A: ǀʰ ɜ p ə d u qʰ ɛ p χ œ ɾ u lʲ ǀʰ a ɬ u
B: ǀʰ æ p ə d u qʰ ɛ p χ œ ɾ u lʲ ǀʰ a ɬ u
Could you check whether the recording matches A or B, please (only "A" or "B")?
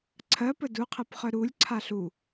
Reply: A